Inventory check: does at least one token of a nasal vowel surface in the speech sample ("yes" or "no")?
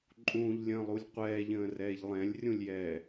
yes